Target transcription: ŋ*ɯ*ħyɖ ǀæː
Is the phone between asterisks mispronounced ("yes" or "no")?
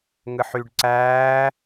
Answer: no